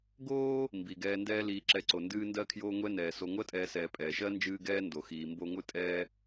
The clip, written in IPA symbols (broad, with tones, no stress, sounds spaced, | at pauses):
ɡ oː˥ | m b i˨ ɡ ɛː˦ n d ɛː˥ l iː˨ ǁ ɛ˨ ǀ o˩ n d ɨː˦ n d ɜ˦ kʰ j oː˦ ŋʷ ɛ˥ n ɛː˩ s o˨ ŋʷ ɜ˥ tʼ ɛː˨ s ɛː˨ pʼ ɛː˩ ʃ ɜ˥ n d͡ʒ ɨː˦ ɡ ɛː˥ n d o˩ x iː˩ m b o˦ ŋʷ ɨ˥ tʼ ɛː˥